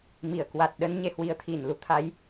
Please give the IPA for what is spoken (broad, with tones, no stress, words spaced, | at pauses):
mi˧˩ə̯ kwa˨˩t̚ɗə˧n ɲe˧hwi˨˦ə̯ t̪ʰi˧˩n lu˧t̪ʰa˨˦j